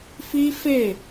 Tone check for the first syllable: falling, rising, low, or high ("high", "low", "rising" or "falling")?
high